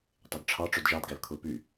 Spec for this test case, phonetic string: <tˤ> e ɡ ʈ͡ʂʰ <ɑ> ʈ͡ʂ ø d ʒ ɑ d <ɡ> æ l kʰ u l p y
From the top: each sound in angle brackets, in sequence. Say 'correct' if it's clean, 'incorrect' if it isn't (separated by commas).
correct, correct, correct